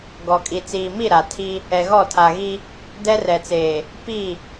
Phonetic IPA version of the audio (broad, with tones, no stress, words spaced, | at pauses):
ɡɔ˨kʼi˨ t͡siː˨mi˦˨ ɾa˨ tʰi˦ | ɛ˨ɣɔ˦˨tʰa˨ɣi˦ | dɛ˦rɛ˨t͡seː˨ | pi˦˨